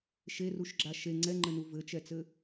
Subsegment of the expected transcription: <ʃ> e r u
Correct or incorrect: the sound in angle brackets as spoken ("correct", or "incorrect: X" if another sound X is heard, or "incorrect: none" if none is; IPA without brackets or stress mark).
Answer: correct